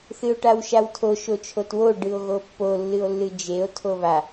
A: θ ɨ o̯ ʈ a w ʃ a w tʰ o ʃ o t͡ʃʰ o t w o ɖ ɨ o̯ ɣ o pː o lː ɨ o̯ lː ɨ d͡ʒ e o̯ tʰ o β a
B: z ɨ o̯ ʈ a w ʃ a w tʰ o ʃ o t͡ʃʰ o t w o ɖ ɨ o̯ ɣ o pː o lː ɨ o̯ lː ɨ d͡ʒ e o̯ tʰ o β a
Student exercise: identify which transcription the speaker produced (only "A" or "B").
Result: A